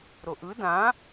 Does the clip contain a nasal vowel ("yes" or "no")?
yes